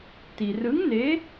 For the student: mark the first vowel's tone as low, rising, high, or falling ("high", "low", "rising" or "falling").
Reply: low